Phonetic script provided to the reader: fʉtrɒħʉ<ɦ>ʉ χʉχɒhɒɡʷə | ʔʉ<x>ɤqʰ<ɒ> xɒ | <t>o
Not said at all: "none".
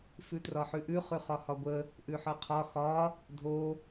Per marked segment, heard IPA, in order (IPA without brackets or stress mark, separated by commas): ʔ, ħ, ɒ, dʱ